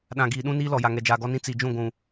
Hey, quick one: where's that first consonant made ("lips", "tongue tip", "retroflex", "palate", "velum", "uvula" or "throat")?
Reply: tongue tip